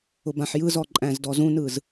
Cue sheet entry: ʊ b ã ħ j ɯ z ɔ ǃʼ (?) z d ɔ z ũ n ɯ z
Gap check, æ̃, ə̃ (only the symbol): æ̃